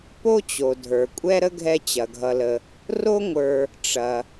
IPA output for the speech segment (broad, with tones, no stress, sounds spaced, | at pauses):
p o˥ t͡ɕ o˩ dʱ ə˞˩ kʷʼ ɛ˥ ɾ ə˥ ɡʱ ɛ˦ t͡ɕ ɐ˩ ɡʱ ʌ˨ l ə˨ | r o˦ ŋʷ ə˞˨ | ʈ͡ʂ ɐ˩